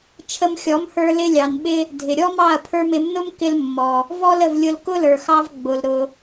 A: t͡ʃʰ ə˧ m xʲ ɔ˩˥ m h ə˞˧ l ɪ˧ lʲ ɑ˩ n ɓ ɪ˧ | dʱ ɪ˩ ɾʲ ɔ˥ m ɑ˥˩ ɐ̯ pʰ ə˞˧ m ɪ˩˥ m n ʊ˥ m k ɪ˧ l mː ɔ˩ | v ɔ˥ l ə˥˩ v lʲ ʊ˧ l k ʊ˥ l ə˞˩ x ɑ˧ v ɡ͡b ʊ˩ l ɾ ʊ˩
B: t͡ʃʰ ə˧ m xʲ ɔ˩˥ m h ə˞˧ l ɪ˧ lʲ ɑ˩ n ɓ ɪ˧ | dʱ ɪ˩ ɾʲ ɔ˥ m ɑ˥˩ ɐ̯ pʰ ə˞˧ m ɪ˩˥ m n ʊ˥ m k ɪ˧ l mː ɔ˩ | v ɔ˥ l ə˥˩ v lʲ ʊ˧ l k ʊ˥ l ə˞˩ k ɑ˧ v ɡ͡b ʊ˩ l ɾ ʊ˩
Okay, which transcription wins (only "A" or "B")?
A